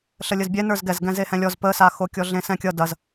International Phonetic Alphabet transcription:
ɬ ə lʲ ə z bʲ ɛ n ə˞ z ɡ ɛ z ɡ ɛ̃ z e h ɛ̃ lʲ ɔ z p ə s a x o kʲ ɔ ɮ ẽ s ɛ̃ kʲ ʌ d ɐ z

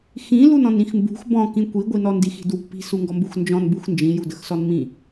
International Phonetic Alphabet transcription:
x ĩ l u n ɔ̃ n ĩ x m b ṳ x b ɔ̃ k ĩ kʷ i ɡʷ i n ɔ n d i x i̤ d w ṳ p i̤ s u ŋ ɡ ɔ m b u x n d͡ʒ ɔ̃ n b u x n d͡ʒ ĩ j u d ə x s ɔ n m ĩ

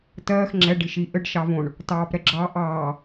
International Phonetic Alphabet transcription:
t ɜː x ŋ͡ǁ ɛ ɖ i ʃ i ʔ ɘ ɖ ʃ ɑ v õ ɳ | t ɑː p ɾ ɛ ɡ͡ǁ ɑ ʔ ɑː

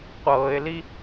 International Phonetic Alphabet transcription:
qʷ ɤː ɪ̯ l i

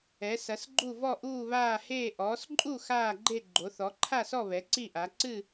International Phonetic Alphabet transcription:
ɛ˨˦ s ɐ˨˦ s ɡ͡ǃ u˥˧ v ɔ˥˧ ʔ uː˥˧ β aː˥˧ h eː˥˧ ʔ ɔː˨˦ s ǃʼ u˥˧ x aː˥˧ ɡ͡ǃ e˥˧ ɡ͡ǃ o˨˦ θ ɔ˨˦ ǃʰ a˥˧ s ɔ˥˧ β ɛ˨˦ ǀ i˥˧ ʔ a˨˦ ǀ ɨ˥˧

